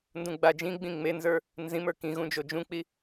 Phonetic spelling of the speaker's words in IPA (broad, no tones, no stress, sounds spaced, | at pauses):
n d ũ ɡ͡b a d͡ʒ ĩ ɡ͡b ĩ ŋ͡m e n z ə˞ | n z ĩ m ə˞ k ĩ ɣ ũ d͡ʒ o d͡ʒ ũ k͡p i